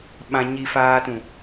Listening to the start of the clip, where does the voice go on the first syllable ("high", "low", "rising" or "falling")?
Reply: low